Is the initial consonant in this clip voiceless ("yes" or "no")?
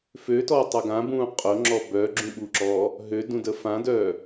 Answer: yes